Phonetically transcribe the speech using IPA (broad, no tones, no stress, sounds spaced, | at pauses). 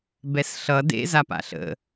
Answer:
b ɛ s ɬ ʌ d ḛ z a p a̰ ɬ ə̰